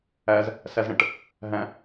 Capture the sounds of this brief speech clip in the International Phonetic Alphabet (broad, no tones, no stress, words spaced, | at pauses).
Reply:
æz | sæzɽə̃ʈ | ɦæ̃